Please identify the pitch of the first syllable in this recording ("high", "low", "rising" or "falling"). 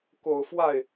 low